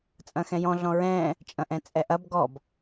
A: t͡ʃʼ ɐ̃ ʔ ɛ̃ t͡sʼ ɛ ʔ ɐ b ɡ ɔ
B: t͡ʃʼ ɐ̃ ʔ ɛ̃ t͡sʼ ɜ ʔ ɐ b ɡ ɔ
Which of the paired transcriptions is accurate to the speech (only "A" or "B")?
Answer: A